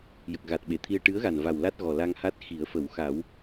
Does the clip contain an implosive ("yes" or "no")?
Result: yes